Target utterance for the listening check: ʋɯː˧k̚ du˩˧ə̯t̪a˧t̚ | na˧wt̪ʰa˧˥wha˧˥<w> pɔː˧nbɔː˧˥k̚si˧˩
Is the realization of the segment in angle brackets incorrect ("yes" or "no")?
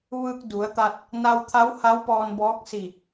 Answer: no